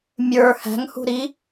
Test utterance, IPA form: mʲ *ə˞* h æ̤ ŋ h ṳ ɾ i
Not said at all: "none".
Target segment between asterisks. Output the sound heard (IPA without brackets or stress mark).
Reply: ə˞